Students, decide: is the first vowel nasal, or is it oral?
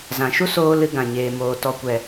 nasal